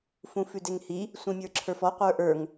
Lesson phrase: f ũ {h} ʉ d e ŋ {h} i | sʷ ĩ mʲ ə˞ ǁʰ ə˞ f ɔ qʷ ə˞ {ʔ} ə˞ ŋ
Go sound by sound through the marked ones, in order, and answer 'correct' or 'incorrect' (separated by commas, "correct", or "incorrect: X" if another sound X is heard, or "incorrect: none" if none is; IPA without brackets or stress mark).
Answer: incorrect: f, correct, correct